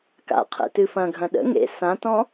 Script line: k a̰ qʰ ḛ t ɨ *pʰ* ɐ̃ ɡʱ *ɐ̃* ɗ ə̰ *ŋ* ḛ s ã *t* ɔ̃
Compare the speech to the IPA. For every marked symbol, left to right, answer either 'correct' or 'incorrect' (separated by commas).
incorrect, correct, correct, correct